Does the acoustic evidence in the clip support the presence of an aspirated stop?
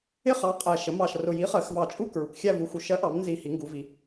no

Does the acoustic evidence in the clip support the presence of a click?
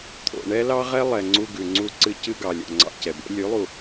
yes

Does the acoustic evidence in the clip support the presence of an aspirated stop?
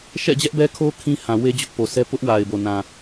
yes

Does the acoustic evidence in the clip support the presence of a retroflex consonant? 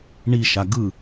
yes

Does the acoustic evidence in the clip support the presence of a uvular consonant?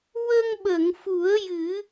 no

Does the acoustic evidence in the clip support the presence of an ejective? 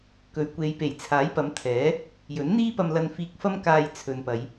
no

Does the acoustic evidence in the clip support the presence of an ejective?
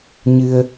no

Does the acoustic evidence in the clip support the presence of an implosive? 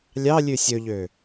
no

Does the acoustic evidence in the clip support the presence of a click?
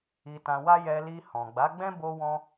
no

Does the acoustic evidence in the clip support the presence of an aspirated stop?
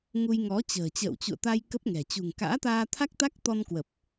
yes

